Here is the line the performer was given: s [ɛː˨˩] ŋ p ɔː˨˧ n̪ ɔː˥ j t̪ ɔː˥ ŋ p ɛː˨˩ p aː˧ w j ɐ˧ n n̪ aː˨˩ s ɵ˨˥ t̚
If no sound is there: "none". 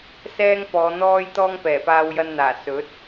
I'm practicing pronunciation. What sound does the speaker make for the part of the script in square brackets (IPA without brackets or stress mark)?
ɛː˥